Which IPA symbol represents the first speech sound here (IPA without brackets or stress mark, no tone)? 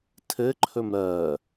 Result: tʰ